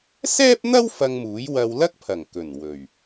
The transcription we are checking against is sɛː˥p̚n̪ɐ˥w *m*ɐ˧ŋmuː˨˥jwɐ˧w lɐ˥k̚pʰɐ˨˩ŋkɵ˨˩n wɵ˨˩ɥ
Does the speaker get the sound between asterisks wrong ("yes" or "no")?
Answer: yes